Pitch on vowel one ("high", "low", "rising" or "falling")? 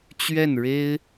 falling